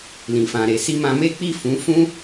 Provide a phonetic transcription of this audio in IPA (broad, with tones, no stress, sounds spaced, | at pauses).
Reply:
l ĩ˨ f ã˨ ɾ e˨ s i˧ m ã˧ m e˦ k͡p i˦˨ f ũ˨˦ f ũ˦